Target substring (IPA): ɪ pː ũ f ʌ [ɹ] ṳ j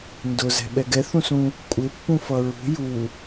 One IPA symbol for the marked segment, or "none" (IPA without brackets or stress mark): ɹ